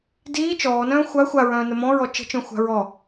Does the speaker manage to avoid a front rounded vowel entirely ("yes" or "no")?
no